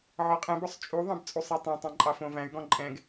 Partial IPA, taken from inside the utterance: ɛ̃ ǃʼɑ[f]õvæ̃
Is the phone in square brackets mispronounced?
no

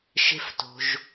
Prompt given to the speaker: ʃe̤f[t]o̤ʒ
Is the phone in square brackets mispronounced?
no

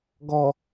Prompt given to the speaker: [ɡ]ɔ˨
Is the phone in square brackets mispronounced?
no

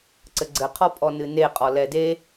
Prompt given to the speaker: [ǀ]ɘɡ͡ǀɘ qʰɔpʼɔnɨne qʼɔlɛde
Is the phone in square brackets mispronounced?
no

